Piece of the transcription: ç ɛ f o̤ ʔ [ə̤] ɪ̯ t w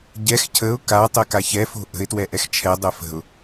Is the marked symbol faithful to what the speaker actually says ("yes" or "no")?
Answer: yes